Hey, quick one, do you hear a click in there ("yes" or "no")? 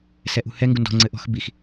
yes